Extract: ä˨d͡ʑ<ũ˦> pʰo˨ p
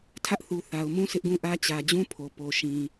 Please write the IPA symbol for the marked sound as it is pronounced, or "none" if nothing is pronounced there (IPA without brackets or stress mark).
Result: ũ˦